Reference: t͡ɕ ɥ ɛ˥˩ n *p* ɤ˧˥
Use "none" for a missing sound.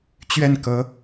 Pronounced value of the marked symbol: k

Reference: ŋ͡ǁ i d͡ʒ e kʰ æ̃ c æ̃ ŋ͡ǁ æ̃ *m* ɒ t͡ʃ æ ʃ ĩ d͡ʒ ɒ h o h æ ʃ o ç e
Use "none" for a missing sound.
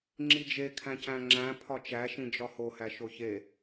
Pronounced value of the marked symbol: pʰ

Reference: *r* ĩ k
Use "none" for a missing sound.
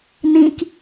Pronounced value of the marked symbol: n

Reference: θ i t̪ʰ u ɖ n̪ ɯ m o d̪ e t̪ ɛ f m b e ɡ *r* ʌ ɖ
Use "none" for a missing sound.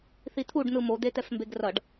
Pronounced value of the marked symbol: r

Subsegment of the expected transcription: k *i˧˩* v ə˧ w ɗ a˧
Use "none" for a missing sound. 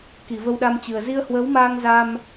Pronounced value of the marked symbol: i˧˩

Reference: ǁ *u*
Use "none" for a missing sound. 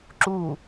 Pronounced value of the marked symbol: u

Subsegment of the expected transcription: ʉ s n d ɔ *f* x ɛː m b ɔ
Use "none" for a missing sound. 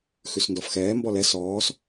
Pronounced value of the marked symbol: f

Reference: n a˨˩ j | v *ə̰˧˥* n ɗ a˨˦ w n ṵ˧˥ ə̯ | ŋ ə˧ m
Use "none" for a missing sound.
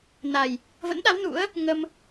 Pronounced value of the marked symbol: ə̰˧˥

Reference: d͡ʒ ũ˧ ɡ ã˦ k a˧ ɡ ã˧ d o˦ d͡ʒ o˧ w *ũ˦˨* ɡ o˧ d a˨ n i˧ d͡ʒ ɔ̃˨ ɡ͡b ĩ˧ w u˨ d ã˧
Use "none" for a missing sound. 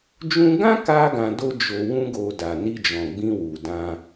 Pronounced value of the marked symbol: ũ˦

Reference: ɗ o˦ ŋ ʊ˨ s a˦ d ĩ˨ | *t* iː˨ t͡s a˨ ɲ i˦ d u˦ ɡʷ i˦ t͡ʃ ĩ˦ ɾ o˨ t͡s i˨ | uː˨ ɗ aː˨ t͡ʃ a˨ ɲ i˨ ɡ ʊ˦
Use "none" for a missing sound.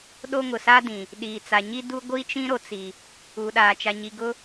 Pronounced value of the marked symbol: ɗ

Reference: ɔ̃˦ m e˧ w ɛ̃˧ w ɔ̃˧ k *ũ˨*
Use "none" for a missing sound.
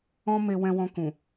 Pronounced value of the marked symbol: ũ˨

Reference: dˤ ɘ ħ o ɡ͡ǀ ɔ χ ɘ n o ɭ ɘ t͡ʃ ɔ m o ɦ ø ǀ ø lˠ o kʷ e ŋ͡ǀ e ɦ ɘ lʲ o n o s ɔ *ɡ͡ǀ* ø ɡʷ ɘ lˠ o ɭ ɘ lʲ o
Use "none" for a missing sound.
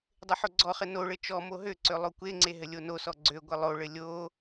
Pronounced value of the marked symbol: ɡ͡ǀ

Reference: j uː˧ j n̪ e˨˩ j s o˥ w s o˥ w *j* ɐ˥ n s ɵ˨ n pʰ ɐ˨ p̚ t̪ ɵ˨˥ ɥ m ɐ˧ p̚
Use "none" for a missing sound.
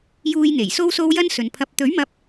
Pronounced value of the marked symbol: j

